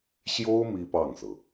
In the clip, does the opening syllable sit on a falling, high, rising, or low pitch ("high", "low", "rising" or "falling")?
high